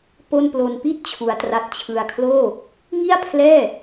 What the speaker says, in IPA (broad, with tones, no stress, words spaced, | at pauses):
po˥˩n plo˧npi˥˩t̚ t͡ɕʰu˦˥a̯tra˦˥t̚ t͡ɕʰɯ˧a̯kʰloː˥˩ | ŋi˥˩a̯ pʰlɛː˥˩